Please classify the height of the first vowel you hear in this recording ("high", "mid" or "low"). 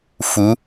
high